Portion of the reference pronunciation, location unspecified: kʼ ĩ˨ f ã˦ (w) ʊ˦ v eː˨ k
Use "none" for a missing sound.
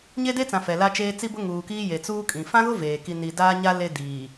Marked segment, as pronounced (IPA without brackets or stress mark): ɣ